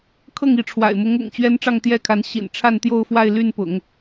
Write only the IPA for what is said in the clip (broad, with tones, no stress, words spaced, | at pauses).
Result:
kʰɤ˥˩ŋi˧˥ʈ͡ʂʰwa̰˨˩ɪ̯mʊ˧˥ŋ ʊ̰˨˩ŋ t͡ɕɥɛ˥nʈ͡ʂɑ˥˧ŋt̪jɛ˥˩kʰa˧˥n ɕḭ˨˩nʈ͡ʂʰa˥˧nt̪jo˥˧ʊ̯ fwa˥˧ɪ̯ly˥˩n pʊ̰˨˩˦ŋ